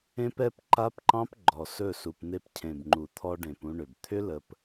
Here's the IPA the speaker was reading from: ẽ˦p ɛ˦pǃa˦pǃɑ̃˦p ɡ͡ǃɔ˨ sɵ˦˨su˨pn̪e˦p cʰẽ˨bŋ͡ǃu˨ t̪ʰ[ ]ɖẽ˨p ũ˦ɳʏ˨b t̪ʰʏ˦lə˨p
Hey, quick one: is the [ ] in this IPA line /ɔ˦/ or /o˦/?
ɔ˦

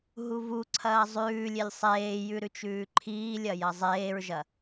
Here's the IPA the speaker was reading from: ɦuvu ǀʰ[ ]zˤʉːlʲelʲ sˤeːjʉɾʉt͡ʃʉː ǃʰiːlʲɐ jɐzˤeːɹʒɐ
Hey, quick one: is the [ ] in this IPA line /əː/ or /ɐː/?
ɐː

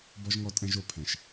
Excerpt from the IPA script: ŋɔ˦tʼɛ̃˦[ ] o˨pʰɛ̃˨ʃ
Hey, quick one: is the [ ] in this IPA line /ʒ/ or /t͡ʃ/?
ʒ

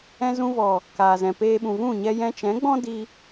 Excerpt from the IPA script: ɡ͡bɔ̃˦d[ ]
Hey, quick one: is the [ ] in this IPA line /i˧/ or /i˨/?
i˧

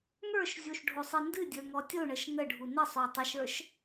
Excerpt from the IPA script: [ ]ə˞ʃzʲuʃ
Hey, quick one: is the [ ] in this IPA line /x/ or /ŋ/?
ŋ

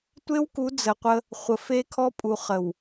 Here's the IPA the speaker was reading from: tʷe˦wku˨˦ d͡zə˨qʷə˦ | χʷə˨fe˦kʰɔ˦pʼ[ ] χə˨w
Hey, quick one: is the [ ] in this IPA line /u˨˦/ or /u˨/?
u˨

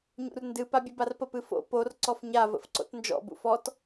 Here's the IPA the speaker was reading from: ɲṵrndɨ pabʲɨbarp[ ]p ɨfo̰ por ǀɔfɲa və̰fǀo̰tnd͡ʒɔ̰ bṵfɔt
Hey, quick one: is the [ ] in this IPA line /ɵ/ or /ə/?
ə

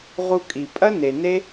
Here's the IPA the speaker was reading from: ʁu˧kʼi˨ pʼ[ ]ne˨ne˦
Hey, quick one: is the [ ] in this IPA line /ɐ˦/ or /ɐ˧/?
ɐ˦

